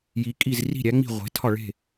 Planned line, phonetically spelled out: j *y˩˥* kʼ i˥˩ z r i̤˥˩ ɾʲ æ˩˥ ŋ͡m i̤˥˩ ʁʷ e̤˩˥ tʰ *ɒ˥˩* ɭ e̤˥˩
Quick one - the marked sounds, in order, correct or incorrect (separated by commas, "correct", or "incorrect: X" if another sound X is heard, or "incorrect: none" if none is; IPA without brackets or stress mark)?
incorrect: i˩˥, correct